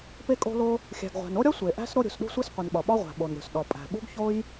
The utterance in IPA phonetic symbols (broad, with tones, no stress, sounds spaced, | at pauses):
p e˥ kʼ o̤˥ l o˥ | xʲ æ̤˩ ɡ ʁʷ æ̤˩ n o˥ ɾʲ ɒ˥ sʷ e˩ ʔ æ̤˥ s ɾ o˥ ɾʲ ṳ˩ s ɗ ṳ˥ sʷ i˥ s qʷ i˩ n ɓ ɒ˩ ɓ ɒ˥ ʁʷ æ̤˩ ɓ o˩ n ɾʲ o̤˩ s ɗ ɒ˩ pʼ æ̤˩ ɓ ṳ˥ ɡ ç o˥ j